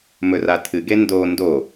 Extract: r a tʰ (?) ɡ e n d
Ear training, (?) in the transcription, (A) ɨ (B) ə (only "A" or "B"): A